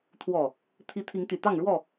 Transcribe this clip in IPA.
t̪ʰwɔ˨˩ | t̪ʰi˦ t̪ʰi˨˦ŋt̪y˨˩ t̪ɑ˥˨ŋɻwɔ˥˨

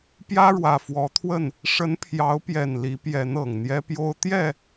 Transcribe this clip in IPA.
pjä˦ɻwä˨˩fwɔ˨˦t̪ʰwə˥˨n | ʂə˨˦n pʰjɑ˨˦ʊ̯pjɛ˨˩n li˨˦pjɛ˨˦n ɤ˨˩ŋn̪jɛ˦pjo˦ʊ̯ t̪jɛ˥˨

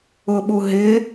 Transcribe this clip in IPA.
ʊɓu ɦɪ

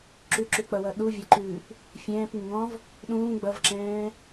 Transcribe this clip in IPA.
ǁʉǁʉk͡pʌwʌ ɗuvʲʌǃʉːp | fʲɛ̃ːp ŋɪŋɔ̃v | ɗũː ɡ͡bʌvǁɛ̃ː

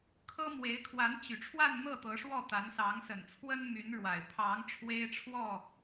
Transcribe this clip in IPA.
kʰɤ˥mwe˧˥ɪ̯kʰwa˧˥n t͡ɕy˨˩ʈ͡ʂʰwa˥˧nn̪ɤ˥˩t̪ɤ˧˥ ʂwɔ˥˩t̪a˧˥n sɑ˧˥ŋsə˨˩nt͡sʰwə˥nmy˧˥n ɻwa˨˩ɪ̯ pʰɑ˧˥ŋ ʈ͡ʂʰwe˥ɪ̯ʈ͡ʂʰwɔ˥˩

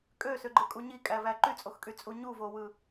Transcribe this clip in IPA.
kʼøsøɡ͡ǃɯkʼu ɲikʼævæ ǃyt͡sʼoxkʼyt͡sʼu ɲuvowɯ

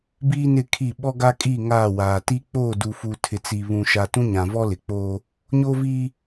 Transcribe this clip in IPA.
biː˦nɪ˦˨kʰi˦˨ ɓɔ˦ɡa˦kʼiː˦˨ ŋaː˦˨waː˨ ti˦ k͡poː˦˨du˨fu˨ tʰɪ˨t͡si˨ βũ˨ʃa˨ tũ˦ɲã˨vɔ˦lɪ˨ k͡poː˦ | ɲoː˦viː˦

